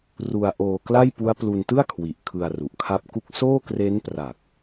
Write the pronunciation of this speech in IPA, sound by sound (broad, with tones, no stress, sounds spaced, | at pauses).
r u˧ a̯ ʔ oː˧ k l a˥˩ j p u˦˥ a̯ p l u˧ n t ɯ˥˩ a̯ kʰ w i˨˩ ʔ kʰ ɯ˧ a̯ r u˨˩ ʔ kʰ a˦˥ p̚ k u˥˩ k̚ s oː˥˩ k r e˦˥ n p r a˨˩ k̚